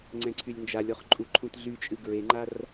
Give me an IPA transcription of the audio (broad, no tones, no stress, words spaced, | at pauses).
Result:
ŋ͡ǀɛ̃ǀʰylʲnd͡ʒalʲɔχ ǃʼuǃʰũtɮyt͡ʃʼɨ ɡɹeŋ͡ǃar